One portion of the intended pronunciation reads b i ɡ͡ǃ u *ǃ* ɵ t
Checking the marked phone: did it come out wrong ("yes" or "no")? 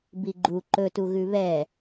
no